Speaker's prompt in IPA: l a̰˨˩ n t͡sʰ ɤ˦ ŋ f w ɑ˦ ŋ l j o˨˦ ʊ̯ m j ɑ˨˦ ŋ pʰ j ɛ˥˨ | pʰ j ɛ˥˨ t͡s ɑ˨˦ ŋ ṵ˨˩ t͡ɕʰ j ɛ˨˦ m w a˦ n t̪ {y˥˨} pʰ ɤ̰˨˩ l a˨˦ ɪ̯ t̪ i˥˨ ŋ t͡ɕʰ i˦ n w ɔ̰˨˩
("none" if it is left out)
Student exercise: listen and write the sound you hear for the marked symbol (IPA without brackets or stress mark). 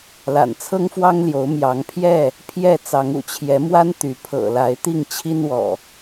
y˨˦